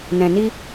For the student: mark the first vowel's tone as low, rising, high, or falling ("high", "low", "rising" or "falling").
low